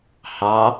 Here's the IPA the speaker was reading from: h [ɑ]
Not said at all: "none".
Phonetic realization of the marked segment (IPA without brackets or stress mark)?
ɑ